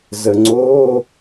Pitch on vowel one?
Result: low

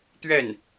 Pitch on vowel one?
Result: falling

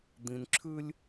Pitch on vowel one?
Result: low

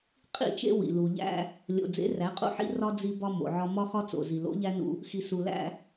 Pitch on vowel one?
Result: falling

